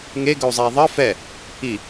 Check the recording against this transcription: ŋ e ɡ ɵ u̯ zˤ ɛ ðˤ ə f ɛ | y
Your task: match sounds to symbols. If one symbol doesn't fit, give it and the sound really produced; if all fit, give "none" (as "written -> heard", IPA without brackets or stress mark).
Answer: y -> i